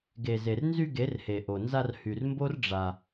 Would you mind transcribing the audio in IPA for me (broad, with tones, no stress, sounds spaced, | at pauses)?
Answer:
ɡ e˨ z e˨ r n z y˧ ɡ e˨˦ r h e˨ ʔ o˨ n z a˧ r h y˨ r m b o˦ r ɖ͡ʐ a˧